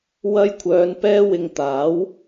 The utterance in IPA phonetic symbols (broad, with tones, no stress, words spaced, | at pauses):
wɐ˧jkʷʰœː˨˧n pɛː˧wɪ˨ŋ t̪aː˨˥w